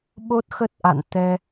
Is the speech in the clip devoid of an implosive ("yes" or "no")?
no